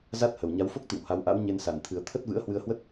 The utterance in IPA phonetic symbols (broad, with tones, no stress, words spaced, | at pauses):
za˦˥t̚hə˨˩w ɲa˨˦wfo˦˥k̚t̪ḭ˧˨w ha˨˦wʔa̰˧˥w ɲe˧nsa˨˩n t̪ʰɨ˨˩ə̯t̪ʰə˦˥t̚ vɨ̰˧˥ə̯hwɨ˧ə̯hwə˦˥t̚